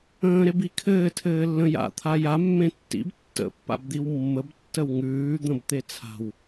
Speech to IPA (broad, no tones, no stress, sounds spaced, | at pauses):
ə̃ː ɾ e b i kʰ ɘː tʰ ɘː lː ə̃ j a̰ t̪ʰ a j a mː ẽ tː ḭ b tː ə̰ pː a̰ b d̪ i w mː ə b tː ə w ŋ ʉː d̪ ə̃ b t̪ e t͡sʰ a̤ w